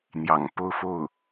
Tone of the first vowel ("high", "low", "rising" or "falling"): low